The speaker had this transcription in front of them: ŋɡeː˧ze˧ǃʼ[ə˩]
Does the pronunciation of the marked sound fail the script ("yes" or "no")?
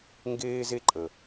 no